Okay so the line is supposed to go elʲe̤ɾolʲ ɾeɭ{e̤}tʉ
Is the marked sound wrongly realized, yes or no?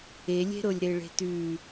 no